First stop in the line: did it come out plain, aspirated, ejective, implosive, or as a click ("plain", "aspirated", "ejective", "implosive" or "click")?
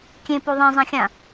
plain